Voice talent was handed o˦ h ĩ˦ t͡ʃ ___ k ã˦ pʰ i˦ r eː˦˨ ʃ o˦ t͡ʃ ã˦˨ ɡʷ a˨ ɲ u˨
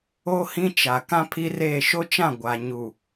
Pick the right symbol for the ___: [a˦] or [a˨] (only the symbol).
a˨